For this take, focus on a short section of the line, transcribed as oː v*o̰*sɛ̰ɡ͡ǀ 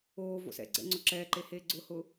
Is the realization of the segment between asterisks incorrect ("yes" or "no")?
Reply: no